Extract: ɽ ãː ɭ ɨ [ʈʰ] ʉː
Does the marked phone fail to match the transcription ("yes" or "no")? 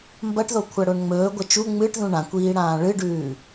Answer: yes